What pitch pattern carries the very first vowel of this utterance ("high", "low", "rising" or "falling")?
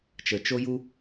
low